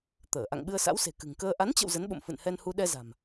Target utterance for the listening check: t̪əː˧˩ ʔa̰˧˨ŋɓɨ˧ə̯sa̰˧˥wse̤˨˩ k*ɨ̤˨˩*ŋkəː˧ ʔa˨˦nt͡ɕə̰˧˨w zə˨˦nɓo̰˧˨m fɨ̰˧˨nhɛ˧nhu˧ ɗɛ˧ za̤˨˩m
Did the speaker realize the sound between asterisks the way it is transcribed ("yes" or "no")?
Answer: yes